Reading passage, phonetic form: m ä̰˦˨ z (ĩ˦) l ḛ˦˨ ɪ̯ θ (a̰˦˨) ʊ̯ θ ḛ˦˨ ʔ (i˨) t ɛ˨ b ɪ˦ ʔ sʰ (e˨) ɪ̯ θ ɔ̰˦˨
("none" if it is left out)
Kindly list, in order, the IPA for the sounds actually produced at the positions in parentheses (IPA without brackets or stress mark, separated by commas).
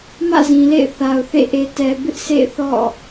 ĩ˨, a˨, e˨, ḛ˦˨